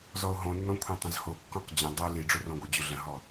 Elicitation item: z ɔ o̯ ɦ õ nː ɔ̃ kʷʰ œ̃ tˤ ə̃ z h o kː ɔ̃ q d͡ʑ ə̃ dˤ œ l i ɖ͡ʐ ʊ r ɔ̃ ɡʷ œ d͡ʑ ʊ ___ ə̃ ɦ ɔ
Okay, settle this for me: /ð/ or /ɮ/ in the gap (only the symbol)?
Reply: ɮ